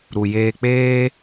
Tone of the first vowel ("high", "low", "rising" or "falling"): low